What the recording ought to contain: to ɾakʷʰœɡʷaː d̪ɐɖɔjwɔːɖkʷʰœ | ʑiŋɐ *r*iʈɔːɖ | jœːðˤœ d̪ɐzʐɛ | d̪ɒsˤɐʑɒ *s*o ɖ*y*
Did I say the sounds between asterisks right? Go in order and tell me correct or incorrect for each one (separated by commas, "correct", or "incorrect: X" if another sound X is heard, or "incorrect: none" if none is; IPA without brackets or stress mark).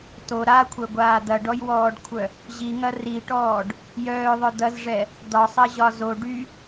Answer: correct, incorrect: z, correct